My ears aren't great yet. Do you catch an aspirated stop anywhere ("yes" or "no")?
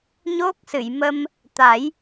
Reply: no